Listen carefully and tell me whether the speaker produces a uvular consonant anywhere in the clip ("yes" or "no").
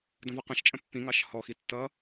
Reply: yes